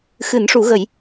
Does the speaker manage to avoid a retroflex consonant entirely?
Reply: no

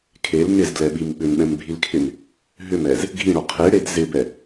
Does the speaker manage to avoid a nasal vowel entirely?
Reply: no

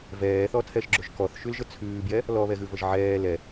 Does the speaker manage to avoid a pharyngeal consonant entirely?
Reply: no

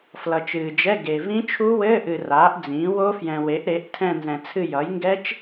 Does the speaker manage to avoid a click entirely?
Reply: yes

